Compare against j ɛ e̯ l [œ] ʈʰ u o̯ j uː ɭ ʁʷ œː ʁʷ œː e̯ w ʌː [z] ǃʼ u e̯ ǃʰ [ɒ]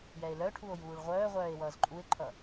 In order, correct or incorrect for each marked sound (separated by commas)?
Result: correct, correct, incorrect